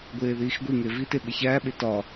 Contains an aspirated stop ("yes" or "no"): no